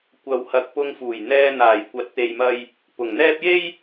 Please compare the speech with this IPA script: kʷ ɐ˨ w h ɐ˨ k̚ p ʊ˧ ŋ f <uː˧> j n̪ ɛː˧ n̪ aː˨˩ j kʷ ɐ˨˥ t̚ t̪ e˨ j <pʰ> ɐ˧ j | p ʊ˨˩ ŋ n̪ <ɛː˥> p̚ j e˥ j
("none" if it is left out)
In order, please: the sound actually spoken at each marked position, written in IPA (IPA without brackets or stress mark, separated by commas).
uː˨˩, m, ɛː˥